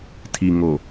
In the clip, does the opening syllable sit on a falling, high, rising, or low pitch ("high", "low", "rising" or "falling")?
low